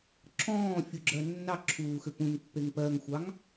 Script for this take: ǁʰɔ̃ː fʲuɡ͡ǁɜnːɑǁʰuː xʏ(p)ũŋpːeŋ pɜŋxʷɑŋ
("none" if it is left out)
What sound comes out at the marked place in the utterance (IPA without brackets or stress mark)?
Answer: p